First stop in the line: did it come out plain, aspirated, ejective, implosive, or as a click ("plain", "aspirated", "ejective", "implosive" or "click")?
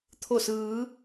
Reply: aspirated